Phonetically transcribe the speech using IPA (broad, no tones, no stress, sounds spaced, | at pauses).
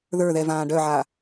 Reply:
ð ə˞ ð ɛ v ãː ɖ œ ʕ a